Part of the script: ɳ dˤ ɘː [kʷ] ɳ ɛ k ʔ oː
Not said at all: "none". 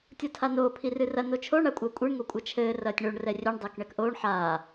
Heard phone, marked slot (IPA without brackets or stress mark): k